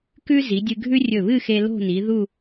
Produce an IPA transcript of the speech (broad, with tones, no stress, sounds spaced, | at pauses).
k ʉ˥ z i˩˧ dʲ ɨ˧ ɡʱ ʉ˥ rʲ ɵ˧˩ β ɨ˥˧ x e˧ l o̤˥˧ n i˩˧ ð u˥˧